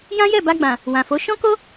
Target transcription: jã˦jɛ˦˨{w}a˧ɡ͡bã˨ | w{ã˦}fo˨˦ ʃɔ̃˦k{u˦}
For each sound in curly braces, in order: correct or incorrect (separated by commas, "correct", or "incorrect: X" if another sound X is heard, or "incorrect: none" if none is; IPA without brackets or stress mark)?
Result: incorrect: b, incorrect: ã˨, incorrect: o˦